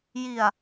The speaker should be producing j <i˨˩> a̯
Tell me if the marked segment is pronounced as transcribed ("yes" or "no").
yes